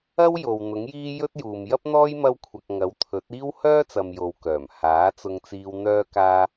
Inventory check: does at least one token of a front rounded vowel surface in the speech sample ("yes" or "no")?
yes